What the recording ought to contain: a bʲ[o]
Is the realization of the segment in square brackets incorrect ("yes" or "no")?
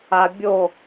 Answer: no